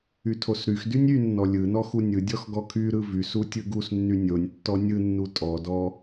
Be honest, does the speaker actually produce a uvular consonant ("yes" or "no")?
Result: no